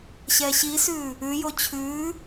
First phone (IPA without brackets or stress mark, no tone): ɕ